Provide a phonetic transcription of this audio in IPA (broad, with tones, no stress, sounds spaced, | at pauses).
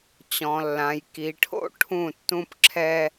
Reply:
t͡ɕ ɔ̃˨ lː ã˨ j k i˨ ʈʰ o̰˦˨ ʈʰ ũ˦˨ tː ũ˦ p ǁʰ ɛ˦